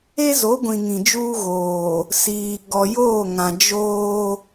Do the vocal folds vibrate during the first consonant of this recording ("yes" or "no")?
yes